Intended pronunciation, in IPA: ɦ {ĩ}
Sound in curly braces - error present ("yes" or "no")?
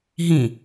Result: no